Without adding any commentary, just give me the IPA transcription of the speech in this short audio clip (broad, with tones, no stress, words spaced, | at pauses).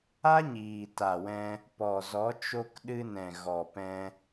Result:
a˦ɲiː˨ ta˨wɛ̃˧ | pɔ˨zɔ˨˦t͡ʃo˧k ɗɨ˧nɛ̃˨ɣɔ˨ pɛ̃˧